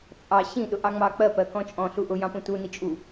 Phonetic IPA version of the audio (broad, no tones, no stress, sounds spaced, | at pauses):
t͡sʼ ɑ ɕ ĩ ɗ ʊ ʔ ɑ ŋ͡m ɑ k͡p ɜ p ɜ k ɔ̃ t͡ʃʼ ɔ̃ ɬ u ʔ ʊ j ɑ̃ p ũ t u n i t͡ʃʼ u